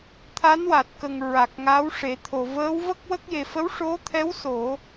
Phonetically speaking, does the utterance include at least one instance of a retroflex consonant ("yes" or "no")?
yes